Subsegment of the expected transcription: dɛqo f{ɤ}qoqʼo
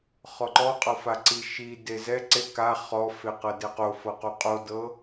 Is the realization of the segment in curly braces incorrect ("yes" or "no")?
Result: no